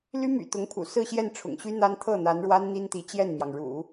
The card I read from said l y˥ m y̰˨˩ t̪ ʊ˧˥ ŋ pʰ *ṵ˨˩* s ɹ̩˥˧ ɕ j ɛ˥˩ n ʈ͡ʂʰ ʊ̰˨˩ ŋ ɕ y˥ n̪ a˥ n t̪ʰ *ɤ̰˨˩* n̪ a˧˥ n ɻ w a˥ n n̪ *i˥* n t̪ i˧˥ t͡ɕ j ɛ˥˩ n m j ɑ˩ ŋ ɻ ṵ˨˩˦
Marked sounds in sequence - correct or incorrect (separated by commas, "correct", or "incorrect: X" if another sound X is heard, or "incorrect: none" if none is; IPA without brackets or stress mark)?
correct, incorrect: ɤ˥˩, correct